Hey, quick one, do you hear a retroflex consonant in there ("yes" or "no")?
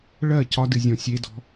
yes